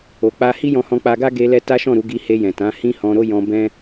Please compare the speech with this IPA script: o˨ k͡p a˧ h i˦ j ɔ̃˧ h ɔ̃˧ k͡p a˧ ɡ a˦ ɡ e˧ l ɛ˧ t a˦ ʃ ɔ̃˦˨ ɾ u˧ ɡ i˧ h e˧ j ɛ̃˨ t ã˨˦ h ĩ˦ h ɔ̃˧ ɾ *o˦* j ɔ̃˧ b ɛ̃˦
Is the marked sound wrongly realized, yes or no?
no